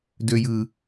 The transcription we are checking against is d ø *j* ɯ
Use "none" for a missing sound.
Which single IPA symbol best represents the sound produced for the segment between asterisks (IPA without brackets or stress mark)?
j